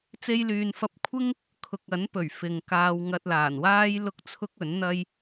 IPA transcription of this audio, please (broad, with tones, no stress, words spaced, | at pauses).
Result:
t͡se˧jlyː˨nfɐ˧p̚ kʷʰɪ˥ŋ | kʰʊ˨k̚ɐ˨˥n pɵ˨˩ɥfɪ˨ŋkaː˧wŋɐ˧t̚ laː˨˩nwaː˥jlʊ˥k̚t͡sʰʊ˥k̚ ɵ˨˥nn̪ɐ˥j